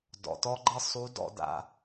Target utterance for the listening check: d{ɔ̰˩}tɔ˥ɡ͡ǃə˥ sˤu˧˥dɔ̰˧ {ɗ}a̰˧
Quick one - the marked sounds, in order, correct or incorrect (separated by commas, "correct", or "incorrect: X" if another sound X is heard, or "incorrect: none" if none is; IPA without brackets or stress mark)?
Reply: correct, incorrect: d